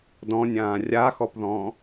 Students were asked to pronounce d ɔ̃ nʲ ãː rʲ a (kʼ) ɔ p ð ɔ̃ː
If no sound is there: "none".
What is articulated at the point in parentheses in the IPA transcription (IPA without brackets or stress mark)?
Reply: x